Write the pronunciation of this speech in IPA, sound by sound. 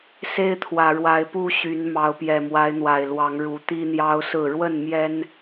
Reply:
s e˦ ɪ̯ t̪ʰ w ä˨˩ ɻ w a˨˦ ɪ̯ p u˦ ɕ y˨˦ n m ɑ˨˦ ʊ̯ p j ɛ˨˩ m w a˨˦ ɪ̯ n̪ w a˨˩ ɪ̯ l w ɑ˨˦ ŋ ɻ u˨˦ t̪ i˦ n̪ j ɑ˦ ʊ̯ s ɹ̩˥˨ ɻ w ə˥˨ n m j ɛ˦ n

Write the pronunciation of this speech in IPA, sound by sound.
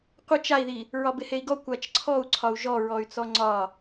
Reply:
qʷ ɘ t͡ʃ a i̯ ð i | ɹ ɒ b ɪ h e i̯ ɡ ɔ kʷ a t͡ʃ ǀʰ ɔ u̯ ǀʰ ɒ u̯ ʒ ɔ ɹ ɔ y̯ t͡s ɔ ŋ͡ǀ ɒ

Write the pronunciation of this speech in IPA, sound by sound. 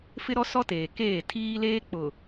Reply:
f ɪ˦ ɾ ɔ˦ s ɔ˦ t eː˨ k eː˦˨ tʰ iː˦ l eː˦ k͡p ʊ˨

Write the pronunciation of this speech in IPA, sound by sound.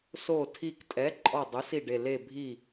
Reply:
s o˧˩ tʰ i˧˩ k tʼ ɛ˩˥ ǃʼ ɔ˧˩ dˤ ʊ˩˥ s i˧˩ ɖ e˧˩ l e˧˩ bʱ i˧˩

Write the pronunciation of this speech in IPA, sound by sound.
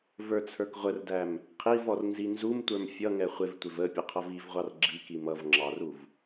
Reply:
v ə˞ t͡sʰ ə˞ k ʁʷ ə r d æ m | qʰ i v ɔ r n z i n z u m tʷ ə˞ m fʲ ʌ ŋ ɛ χʷ ɪ v tʷ ɪ v ə pʲ ʊ qʰ ʌ v i v ʁʷ ɑ r ɡ͡ǁ i k i m ʌ v ŋ͡ǁ ɑ r u v

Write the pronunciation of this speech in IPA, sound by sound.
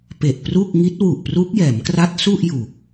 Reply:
p e˨˩ ʔ p r u˥˩ k̚ ŋ i˦˥ t̚ w u˨˩ ʔ p r u˦˥ k̚ j ɛː˩˦ m k r a˦˥ t̚ s u˥˩ ʔ j u˨˩ k̚

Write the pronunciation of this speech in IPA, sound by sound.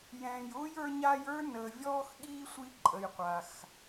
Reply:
j ɛ̃ː˨ j ʊː˥ j ə˞˦ ɲ a˦ j ə˞˥ n əː˨ vʲ ɔː˦ x ɠ iː˦ sʷ i˦ ǃʼ ə˨ j qʷ a˨ x

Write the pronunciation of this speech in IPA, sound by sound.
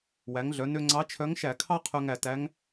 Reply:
w æ˩˥ ŋ ɮ œ˩˥ n ø˥ ŋ͡ǀ ɑ˧˥ t͡ʃʰ œ˧˥ ŋ ʃ æ˧˩˧ kʰ ɑ˥ qʰ œ˥ ŋ æ˥˩ t æ˧˥ ŋ

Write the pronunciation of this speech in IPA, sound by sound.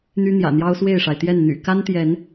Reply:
n̪ y˦ n̪ j ä̰˨˩ n̪ j ɑ˦ ʊ̯ s w e˥˨ ɪ̯ ʂ a˩ ɪ̯ t̪ j ɛ˥˨ n n̪ y̰˨˩ k a˦ n t̪ j ɛ˨˦ n

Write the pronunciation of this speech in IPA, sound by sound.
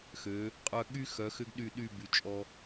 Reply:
x ø˩˧ | qʼ œ˧ ɠ y˥ x œ˩˧ x ʏ˧ ɡ ɗ y˧˩ ɗ y˥˧ b y˩˧ t͡ʃʼ ɔ˧

